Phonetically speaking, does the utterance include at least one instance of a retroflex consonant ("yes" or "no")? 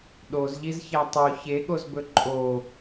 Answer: no